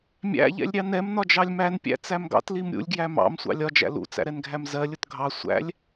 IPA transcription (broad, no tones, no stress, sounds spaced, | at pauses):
mʲ æ̰ ʎ ɛ̰ lʲ ɾʲ ɑ n ɛ m n ɒ d͡ʒ ɑ lʲ m æ n pʲ æ̰ t͡s æ m ɡ ɑ̰ t l i m ɾʲ ṵ lʲ ɡ j æ m ɑ̰ m sʷ ɑ̰ lʲ ɒ d͡ʒ æ̰ l ṵ t͡s æ̰ ɾ ɛ n ɡʱ æ m z ɜ lʲ ʊ t ɡʱ ɑ sʷ æ̰ lʲ